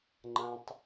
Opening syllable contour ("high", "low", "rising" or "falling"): high